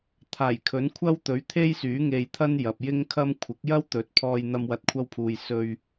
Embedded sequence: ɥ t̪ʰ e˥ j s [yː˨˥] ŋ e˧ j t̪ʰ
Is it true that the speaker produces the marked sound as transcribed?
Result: yes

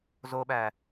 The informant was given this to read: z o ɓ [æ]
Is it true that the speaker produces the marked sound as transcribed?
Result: yes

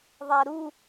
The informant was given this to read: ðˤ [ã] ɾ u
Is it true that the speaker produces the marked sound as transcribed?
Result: no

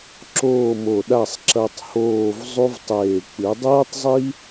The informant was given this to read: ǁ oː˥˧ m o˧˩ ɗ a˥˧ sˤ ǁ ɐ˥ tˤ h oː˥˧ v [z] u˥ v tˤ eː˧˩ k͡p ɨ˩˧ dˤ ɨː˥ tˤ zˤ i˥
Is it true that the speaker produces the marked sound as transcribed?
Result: no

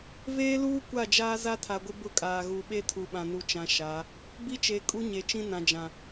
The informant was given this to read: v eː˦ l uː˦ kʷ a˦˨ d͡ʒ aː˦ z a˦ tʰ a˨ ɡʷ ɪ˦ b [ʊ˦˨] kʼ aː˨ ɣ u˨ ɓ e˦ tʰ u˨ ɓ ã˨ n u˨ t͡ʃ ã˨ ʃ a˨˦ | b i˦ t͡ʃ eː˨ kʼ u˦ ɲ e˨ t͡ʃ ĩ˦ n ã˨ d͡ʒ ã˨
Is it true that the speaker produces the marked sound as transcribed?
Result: no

